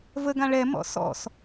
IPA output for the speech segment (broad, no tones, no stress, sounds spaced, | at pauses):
v ə ɡ ã ɭ ɛ m ɔ̰ s ɔ̰ s